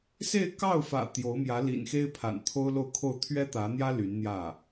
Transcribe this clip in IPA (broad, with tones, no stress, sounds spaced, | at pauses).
s e˥˧ ɪ̯ k ɑ˥˩ ʊ̯ f ä̰˨˩ t̪ j o˧˥ ʊ̯ m j ä˧˥ l ḭ˨˩ n x e˥ ɪ̯ pʰ a̰˨˩ n t̪ʰ o˥ ʊ̯ l o˥˧ ʊ̯ kʰ o˥˩ ʊ̯ t̪ʰ ɥ ɛ˥ t̪ ä˧˥ n̪ j ä˥ l y˧˥ n n̪ j ä˥˩